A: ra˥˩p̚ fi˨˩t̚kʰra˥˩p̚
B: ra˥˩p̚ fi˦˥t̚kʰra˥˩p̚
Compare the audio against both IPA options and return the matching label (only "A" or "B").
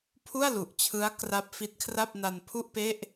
B